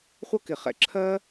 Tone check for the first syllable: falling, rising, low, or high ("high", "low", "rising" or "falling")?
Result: high